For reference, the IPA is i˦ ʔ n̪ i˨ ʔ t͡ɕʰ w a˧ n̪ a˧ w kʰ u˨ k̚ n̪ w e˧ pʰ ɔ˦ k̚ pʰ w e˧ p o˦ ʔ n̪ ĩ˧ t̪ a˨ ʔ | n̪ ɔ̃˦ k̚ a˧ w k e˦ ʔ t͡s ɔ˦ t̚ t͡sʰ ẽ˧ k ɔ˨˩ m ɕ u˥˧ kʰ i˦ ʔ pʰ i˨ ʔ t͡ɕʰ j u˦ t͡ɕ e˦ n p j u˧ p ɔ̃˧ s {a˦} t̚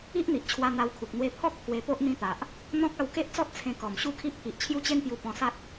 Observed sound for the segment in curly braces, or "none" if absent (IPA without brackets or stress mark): a˦